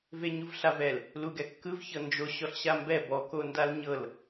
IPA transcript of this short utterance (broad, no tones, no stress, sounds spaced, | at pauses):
v e ɲ u v ɬ a v ɛ l | l u ɡ ɛ kː ɯ v ç ɤ n d͡ʒ o ɕ ɔ ɬ ɕ a m b ɛ b ɔ k o n d a l ɲ ɤ l